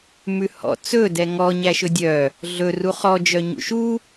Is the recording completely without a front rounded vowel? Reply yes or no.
no